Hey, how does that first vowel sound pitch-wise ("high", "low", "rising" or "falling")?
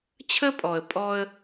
high